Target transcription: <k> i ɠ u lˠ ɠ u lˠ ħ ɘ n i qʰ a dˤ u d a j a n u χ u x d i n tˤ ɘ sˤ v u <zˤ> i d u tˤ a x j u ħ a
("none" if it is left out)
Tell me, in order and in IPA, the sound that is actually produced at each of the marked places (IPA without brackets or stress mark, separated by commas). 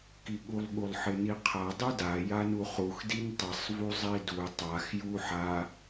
k, zˤ